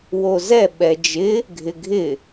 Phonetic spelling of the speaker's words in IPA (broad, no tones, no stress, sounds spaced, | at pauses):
w o z ɛ ɓ ɛ d͡ʒ ɪ | ɡʱ ɪ ɡʱ ɪ